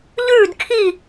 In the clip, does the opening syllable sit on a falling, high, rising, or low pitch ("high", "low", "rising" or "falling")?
falling